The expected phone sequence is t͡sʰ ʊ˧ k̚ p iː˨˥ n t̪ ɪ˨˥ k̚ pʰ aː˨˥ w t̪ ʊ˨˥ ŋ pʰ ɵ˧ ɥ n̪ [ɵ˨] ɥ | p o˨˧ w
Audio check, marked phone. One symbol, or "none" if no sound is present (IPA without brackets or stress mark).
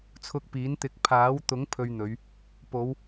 ɵ˨˧